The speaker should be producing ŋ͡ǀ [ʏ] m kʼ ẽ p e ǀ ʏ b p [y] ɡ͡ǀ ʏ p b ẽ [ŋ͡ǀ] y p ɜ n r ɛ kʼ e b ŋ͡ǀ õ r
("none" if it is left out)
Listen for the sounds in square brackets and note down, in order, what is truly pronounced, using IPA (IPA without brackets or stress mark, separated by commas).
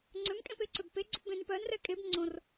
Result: ʏ, e, n